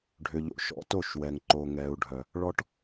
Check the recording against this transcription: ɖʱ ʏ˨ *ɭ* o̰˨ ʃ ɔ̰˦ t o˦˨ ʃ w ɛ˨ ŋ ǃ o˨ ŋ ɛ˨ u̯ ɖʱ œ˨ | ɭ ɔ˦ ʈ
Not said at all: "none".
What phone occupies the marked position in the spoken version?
ʎ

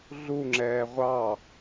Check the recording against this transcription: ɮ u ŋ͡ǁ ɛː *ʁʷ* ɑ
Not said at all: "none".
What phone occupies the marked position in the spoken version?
ʁʷ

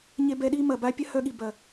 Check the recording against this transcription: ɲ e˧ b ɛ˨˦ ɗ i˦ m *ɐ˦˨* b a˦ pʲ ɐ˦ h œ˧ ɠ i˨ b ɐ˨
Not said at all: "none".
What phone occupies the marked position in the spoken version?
ɐ˨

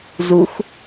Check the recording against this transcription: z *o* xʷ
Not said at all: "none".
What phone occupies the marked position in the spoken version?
u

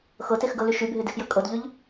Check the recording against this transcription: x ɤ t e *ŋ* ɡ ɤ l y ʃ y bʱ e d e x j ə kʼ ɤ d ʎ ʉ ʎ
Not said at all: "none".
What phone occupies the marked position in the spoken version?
x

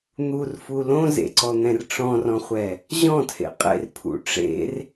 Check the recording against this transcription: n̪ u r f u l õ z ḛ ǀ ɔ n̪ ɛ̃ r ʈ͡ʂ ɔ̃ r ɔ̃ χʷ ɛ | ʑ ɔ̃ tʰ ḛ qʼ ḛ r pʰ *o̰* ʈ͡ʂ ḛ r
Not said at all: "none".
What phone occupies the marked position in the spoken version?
ṵ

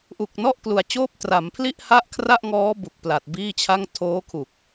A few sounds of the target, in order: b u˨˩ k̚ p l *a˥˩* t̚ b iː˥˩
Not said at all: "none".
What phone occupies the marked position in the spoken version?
a˨˩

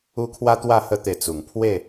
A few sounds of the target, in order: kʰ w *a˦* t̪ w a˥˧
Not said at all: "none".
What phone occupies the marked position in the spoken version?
a˦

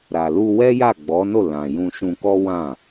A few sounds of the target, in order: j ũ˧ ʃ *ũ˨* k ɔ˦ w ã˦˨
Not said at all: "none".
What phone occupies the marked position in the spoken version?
ũ˧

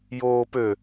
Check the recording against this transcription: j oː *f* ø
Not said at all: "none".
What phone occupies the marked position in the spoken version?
p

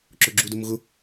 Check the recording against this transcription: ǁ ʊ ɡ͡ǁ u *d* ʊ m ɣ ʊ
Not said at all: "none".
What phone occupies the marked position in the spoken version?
d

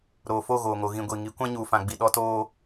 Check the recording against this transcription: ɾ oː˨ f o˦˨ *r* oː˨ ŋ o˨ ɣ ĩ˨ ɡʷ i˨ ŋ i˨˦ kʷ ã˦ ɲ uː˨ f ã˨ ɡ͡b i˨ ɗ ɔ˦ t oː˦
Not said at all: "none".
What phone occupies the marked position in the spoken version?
ɣ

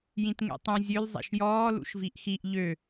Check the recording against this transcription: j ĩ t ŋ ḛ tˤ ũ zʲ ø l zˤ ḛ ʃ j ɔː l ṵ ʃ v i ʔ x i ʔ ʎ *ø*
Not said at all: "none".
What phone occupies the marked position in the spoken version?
ø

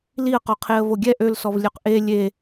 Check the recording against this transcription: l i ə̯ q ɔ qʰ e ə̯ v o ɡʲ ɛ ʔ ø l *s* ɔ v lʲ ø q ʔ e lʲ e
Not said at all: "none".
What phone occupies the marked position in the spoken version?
s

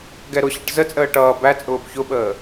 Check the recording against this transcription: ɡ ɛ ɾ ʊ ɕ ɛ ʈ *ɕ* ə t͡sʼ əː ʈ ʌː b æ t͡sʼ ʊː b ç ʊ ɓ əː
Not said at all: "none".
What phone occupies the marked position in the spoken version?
z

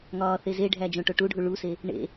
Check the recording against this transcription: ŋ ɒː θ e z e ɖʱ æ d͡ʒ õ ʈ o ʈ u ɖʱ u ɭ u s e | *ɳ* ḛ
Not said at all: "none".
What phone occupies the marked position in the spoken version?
ɳ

